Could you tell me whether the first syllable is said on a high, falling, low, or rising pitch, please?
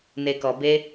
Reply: low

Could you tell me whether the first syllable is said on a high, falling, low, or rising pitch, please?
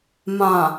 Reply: low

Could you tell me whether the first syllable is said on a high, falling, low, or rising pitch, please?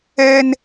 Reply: high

